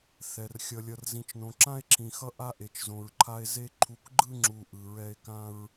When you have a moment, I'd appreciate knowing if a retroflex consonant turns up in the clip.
no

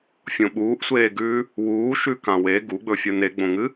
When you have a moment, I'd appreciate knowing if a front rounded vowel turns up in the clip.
no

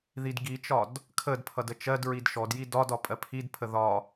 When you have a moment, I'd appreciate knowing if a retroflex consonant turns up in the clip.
no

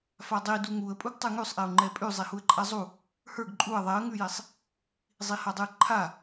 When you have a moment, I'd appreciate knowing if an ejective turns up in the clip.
yes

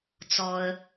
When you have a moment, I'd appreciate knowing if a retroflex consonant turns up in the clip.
no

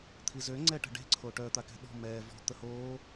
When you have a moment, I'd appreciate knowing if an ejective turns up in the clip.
no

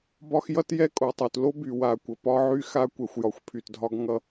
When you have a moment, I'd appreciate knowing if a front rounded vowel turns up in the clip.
yes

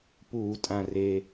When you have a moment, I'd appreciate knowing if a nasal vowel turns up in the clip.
yes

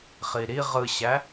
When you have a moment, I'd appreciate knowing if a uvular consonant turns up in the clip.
yes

